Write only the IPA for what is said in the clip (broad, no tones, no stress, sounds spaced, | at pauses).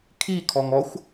kʰ i kʰ ɔ ŋ ɔ xʷ